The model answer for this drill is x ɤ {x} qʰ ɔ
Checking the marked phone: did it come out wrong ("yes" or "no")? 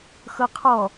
yes